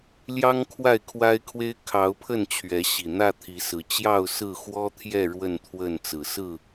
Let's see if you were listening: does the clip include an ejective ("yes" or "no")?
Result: no